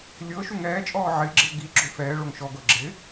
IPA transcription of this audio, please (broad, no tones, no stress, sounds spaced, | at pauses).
lʲ ɤ ʃ u ŋ ɛː t͡ʃʼ ɔː ʕ ɪː ɡ͡ǁ ɪ ʊ̯ ɡ i ɡ͡ǁ o f ɛː ɭ o ŋ ʃ ɔ ɡ ɤ ɡ͡ǁ ɪ